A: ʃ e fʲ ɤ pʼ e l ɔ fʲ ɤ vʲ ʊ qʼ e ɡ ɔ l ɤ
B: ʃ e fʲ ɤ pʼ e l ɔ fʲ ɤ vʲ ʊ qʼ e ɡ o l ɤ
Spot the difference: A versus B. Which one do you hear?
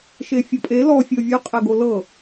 B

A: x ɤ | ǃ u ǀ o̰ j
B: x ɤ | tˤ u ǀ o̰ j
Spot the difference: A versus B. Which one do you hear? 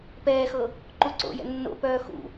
A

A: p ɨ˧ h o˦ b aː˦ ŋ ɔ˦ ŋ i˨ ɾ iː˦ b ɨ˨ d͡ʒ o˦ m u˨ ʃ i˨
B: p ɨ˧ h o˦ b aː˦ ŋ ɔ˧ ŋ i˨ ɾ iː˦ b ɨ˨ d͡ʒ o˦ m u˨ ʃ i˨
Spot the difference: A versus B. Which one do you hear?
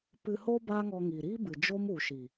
B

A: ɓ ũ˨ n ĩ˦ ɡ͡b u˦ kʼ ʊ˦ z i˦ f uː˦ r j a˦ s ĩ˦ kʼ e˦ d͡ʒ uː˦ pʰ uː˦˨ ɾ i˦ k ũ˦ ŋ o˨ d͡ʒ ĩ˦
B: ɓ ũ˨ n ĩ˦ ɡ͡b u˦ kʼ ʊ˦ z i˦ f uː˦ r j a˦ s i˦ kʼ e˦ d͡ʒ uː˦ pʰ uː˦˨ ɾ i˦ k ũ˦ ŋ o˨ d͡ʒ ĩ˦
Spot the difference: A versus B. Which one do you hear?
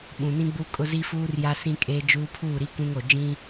A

